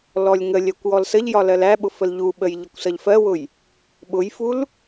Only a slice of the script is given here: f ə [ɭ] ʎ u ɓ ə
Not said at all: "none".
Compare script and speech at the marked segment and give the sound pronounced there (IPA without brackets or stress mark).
l